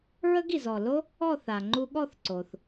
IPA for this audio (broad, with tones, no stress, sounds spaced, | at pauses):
ɹ ə˥ ɡ i˩ z ɔ˧˩ l o˥ | ɔ˥˧ θ a˩ ŋ͡ǃ u˧ ɠ ɔ˥˧ θ ǀ o˩ θ